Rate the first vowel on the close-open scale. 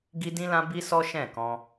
close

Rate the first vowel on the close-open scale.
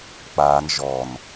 open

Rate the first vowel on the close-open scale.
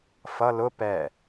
mid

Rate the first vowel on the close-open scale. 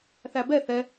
open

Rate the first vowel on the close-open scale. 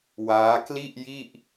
open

